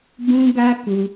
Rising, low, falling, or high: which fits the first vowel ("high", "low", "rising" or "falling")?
high